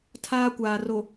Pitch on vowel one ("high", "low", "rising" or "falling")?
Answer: high